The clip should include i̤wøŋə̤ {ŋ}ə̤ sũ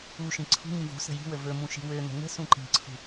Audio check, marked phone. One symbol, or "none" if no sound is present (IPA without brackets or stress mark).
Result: ŋ